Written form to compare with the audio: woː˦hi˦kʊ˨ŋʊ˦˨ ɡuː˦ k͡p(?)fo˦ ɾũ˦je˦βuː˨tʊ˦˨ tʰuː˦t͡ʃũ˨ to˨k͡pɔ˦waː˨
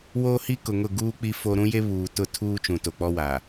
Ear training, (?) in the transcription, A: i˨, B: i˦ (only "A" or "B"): B